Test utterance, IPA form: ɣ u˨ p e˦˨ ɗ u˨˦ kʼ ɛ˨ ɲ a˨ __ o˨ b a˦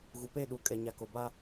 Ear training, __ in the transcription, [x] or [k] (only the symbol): k